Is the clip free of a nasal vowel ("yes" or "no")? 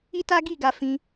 no